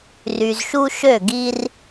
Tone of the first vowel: low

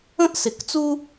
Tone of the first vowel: high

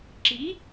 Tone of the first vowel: rising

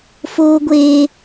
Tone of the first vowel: high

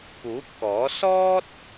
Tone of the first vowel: rising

